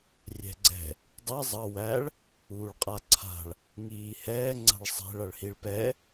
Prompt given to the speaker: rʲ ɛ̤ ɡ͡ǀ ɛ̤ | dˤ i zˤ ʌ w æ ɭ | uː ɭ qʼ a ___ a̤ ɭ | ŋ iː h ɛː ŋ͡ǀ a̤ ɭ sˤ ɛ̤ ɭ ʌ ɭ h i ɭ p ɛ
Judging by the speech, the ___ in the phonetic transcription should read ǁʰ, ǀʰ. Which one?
ǀʰ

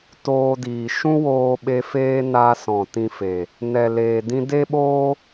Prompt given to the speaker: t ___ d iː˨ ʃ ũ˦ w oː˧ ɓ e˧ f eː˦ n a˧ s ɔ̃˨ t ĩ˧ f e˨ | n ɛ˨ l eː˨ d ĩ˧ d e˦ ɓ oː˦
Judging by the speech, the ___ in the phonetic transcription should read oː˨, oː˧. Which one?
oː˧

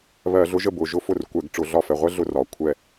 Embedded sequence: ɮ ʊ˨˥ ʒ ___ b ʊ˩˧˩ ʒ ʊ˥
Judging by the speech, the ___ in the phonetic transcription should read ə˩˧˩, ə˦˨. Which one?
ə˦˨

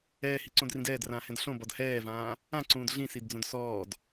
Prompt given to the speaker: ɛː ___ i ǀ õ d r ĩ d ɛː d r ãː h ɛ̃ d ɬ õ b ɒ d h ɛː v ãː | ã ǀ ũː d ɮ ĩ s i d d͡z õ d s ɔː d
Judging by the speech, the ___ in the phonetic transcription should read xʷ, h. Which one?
h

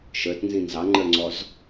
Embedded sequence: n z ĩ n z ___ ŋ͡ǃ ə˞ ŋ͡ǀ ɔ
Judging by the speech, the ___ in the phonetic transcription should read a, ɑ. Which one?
ɑ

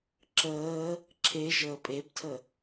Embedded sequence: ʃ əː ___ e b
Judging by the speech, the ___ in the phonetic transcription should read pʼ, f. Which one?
pʼ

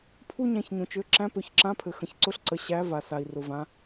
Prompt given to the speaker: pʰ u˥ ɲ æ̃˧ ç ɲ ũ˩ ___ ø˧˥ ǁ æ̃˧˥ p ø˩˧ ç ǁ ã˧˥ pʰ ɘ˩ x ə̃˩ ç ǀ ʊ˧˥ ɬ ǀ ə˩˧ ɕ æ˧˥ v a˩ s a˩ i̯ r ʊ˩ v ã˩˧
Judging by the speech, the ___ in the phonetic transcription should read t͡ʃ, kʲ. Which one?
t͡ʃ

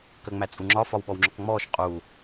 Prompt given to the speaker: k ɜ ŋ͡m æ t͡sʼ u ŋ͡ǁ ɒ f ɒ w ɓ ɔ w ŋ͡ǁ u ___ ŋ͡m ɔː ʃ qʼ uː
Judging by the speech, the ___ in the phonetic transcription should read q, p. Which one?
q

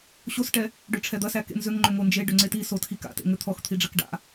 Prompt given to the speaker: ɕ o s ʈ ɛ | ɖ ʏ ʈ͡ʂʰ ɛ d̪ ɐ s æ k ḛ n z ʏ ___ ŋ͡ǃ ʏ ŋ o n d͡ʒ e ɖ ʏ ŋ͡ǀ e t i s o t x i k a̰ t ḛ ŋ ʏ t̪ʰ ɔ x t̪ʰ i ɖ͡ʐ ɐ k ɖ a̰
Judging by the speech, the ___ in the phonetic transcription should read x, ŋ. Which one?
ŋ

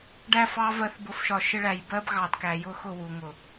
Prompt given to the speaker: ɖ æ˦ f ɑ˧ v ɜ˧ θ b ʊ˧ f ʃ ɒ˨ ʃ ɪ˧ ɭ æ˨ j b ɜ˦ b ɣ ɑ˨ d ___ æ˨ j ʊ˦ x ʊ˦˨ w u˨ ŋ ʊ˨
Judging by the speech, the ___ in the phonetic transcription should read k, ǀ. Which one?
k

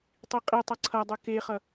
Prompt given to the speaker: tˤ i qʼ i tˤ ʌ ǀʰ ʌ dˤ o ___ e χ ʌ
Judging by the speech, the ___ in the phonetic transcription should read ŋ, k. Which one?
k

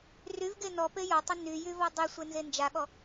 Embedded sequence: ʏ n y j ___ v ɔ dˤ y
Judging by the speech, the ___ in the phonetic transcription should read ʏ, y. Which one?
y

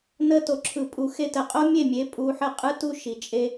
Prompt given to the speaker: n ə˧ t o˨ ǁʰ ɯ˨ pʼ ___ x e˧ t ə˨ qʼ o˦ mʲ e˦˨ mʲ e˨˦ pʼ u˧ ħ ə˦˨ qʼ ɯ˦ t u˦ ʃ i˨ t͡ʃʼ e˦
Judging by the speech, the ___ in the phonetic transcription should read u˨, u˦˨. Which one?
u˨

